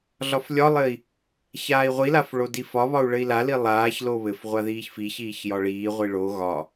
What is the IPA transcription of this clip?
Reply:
ɮɒflʲɒlˠɘi̯ | çaːi̯ʁʷilaf ɭodifɒβɒu̯ ɭɘi̯lali lˠaːç loβɘfʁʷa ðiːçfiçiːç jɒɭiːʁʷi ɭo ɣɒ

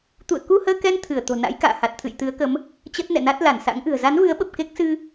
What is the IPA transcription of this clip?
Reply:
t̪ṵ˧˨ə̯ku˧həː˧kɛ˧n t̪ʰɨ˧˩ə̯ t̪o̤˨˩na̰˧˥j ka̰ː˧˨ha˨˩t̚t̪ʰɨ̰˧˨j t̪ɨ˨˦ə̯kə˨˦m | t͡ɕə˦˥t̚nɛ̰˧˨na˦˥t̚ la˧˩nsa̰˧˥ŋʔɨ̤˨˩ə̯ za˨˦nvɨ˨˦ə̯ɓə˨˩p̚ ke˦˥k̚sɨ˧

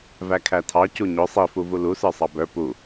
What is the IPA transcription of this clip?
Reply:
vækʰætʰɑ cuɲʊ sˤifuvu lusə˞ sˤɑbə˞ pu

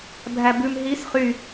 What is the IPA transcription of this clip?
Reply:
bʱæbʉm ɦis χy

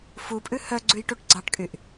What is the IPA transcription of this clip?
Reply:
fupʼʉ hœɡ͡ǀʉjʈuʈ ɡ͡ǀɑʈkʼyʔ

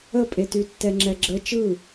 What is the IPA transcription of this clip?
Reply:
əpʼety tːɛŋ͡ǁɛɡ͡ǁə t͡ʃɯ

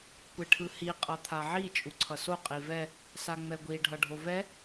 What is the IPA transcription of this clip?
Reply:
kʷeʈʰɯhi qʼʌt̪ʰaʕi t͡ʃʼuǀʰʌso qʼivɛ | saŋ͡mɛɡʷi ɖʱʌɖʱovɛ

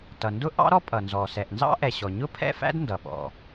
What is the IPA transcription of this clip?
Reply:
tʌ˩ndʊ˥ ʔɑ̰˥ɾɔ˥pʼʌ˩nzɔ˩ sɛ˩ʔnzɑ̰˥ʔɛ˩ ɕɔ˩ɲʊ˥pʰɛ̰˥fæ̰˥d ndʌ˩ɓɔ̰˩

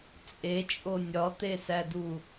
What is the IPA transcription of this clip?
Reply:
t͡sʼet͡ʃʼo nʲɒt̪esædu

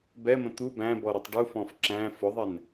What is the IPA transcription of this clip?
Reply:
bɛmə̃ t̪u bæ̃bɔɾʊtˤ ɖufɔ̃f ǁæ̃ fʊðˤɛn

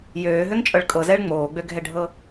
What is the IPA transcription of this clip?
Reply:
jøːɦøŋt͡ʃʼɤɭ kʼɤzɛɭ ŋ͡moːɡ͡bøɡʱɛɖʱɤ

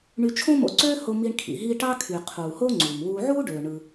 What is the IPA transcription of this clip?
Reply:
ɳy˧t͡ʃʰõ˥mo̰˧ǀøː˥ ho˧mi˧ɳ kʰḭ˩ ɦi˧ ʈɑ˥kʰy˩qʰuː˩ ho˥ŋ͡ǀuː˩m wuː˧ ʕuː˥ɖøː˩ ɳɯ˩

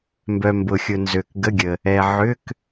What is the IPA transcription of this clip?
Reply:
mbœ˨mbʊ˨xʲʊ˨ nzø˨kɡə˧˥˧ɡʲə˨ | ɛ˨ʕʏ˧˥˧k

